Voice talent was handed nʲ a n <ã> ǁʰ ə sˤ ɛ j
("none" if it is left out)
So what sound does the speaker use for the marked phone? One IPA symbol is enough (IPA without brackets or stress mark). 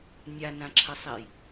ã